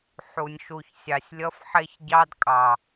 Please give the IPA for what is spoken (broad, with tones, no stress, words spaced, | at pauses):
ħu˨nʲʃu˨çsʲɑ˨sʲ lʲʌ˦fħe˦çɟɑ˦dkʼɑ˨